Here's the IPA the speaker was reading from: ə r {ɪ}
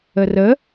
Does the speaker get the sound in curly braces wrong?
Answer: yes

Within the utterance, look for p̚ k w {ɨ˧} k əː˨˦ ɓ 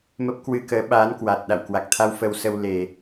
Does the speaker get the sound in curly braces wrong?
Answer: no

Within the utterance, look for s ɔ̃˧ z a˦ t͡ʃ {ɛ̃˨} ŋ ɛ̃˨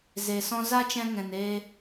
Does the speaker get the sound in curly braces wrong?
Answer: yes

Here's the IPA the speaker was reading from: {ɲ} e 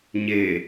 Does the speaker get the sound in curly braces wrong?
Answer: no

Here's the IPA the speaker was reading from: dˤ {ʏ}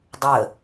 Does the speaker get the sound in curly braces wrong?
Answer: yes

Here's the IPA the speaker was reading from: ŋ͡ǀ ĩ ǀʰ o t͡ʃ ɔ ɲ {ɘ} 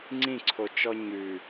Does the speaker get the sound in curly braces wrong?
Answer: yes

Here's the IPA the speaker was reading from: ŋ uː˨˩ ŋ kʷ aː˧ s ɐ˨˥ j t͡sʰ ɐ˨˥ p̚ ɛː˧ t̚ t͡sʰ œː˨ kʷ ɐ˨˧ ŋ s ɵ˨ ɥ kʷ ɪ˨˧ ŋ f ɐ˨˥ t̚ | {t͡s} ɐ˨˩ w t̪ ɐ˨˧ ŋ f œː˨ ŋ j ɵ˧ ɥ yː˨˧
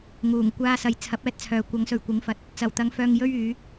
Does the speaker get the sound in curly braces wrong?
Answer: no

